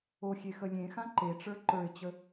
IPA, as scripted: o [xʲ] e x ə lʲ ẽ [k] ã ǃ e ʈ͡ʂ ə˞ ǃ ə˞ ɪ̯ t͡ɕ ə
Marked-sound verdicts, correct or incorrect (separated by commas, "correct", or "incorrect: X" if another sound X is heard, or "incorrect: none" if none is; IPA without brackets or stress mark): correct, incorrect: x